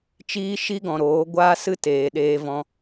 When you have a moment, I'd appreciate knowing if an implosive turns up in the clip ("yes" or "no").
yes